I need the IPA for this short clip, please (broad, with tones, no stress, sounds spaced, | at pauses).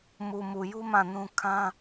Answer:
m u˨ m u˨ j u˦ m ã˦˨ n ũ˦ kʰ ã˦